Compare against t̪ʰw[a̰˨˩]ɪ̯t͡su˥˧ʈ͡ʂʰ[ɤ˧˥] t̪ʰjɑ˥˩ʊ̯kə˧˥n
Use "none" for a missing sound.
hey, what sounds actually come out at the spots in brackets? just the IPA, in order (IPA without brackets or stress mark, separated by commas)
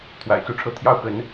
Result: a̰˨˩, ɤ˥˧